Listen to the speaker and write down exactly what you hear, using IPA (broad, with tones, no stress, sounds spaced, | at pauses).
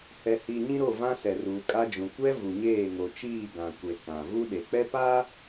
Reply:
h ɛ˨ h i˨ ɲ ĩ˦ ɾ o˦˨ v ã˦ s ɛ˨ r uː˨ kʼ a˦ d͡ʒ ũ˨ kʷ ɛ˦ v u˨ ɲ eː˦˨ ŋ o˨ t͡ʃ iː˦˨ ɡ ã˨ kʷ e˨ k ã˨ v u˦ ɗ e˨ k͡p ɛ˦ p a˦